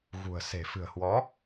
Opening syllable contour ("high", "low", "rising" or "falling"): low